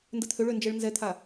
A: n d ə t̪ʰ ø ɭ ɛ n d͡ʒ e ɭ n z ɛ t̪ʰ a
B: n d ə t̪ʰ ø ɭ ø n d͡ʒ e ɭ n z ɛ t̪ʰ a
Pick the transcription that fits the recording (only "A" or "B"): B